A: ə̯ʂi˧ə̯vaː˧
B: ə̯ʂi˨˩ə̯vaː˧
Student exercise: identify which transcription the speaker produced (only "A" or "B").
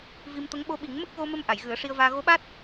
A